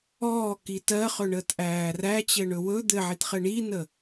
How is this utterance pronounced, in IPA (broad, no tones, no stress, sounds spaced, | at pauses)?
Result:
ɔː k i t ɜ χ ɵ ɳ əː t ʔ æː r æ t͡ɕ ɘ ɳ ɵ w ɵ d̪ ɘ ʕ i t χ ɘ ɳ iː n ə